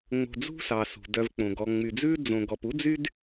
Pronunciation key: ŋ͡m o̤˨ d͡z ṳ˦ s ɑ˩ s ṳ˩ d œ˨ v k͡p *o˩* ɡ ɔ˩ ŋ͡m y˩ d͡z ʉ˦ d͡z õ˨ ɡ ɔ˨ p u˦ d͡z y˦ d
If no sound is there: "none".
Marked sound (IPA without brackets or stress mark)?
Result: õ˩